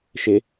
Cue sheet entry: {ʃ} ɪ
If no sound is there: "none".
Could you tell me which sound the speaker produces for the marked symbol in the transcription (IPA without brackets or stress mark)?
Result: ʃ